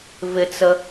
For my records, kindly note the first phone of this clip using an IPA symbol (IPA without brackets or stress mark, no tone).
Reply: v